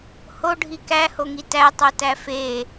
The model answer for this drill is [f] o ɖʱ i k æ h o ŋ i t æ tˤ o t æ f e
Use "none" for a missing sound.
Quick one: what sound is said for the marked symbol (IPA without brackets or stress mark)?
h